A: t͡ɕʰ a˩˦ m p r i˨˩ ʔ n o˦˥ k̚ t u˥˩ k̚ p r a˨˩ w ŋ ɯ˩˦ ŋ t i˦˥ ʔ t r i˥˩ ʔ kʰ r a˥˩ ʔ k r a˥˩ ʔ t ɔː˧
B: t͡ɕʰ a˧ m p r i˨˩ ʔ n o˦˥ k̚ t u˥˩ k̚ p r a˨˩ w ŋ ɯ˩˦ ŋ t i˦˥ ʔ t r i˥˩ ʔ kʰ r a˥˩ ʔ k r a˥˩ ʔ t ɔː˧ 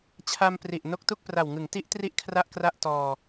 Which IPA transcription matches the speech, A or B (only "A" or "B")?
B